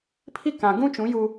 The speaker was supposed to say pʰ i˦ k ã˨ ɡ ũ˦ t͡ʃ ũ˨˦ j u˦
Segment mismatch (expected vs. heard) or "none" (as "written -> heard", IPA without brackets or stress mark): none